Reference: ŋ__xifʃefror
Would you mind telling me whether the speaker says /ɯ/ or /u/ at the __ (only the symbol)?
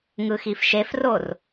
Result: ɯ